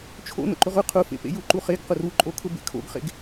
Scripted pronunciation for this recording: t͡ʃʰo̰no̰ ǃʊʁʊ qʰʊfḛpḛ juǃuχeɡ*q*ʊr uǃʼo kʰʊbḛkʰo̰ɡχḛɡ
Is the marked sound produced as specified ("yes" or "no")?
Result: yes